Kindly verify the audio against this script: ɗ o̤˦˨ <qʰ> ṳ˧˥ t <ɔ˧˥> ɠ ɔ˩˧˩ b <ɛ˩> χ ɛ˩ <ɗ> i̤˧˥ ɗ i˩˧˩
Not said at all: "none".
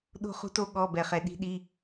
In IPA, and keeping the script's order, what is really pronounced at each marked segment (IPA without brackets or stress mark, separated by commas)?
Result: χ, o˧˥, ɛ˩, ɗ